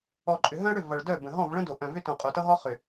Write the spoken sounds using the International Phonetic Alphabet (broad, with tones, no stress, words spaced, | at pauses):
ɔ˨ǃʼʏ˨ɦœ̃˦ɐ̯ɽʏ˦˨ vʌ˨ɭ dœ˦˨bə̃˨ ɦɔ̃˦˨vɭə̃˦do˨ ʔœ̃˨vʏ˦tõ˨ qʼo˨tʌ˦ɦɔ˦ χʏ˨